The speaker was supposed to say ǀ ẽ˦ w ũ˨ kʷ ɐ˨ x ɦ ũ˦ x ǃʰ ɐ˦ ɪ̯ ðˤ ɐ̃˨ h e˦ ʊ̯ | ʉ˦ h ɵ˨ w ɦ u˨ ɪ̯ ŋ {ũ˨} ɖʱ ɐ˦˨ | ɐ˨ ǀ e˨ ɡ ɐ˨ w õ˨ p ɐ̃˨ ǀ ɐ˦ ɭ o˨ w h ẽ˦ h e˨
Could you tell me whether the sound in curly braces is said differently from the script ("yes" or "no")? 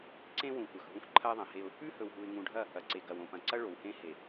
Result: no